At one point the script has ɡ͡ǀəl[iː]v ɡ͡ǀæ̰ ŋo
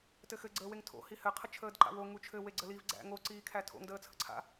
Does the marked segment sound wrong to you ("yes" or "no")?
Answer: yes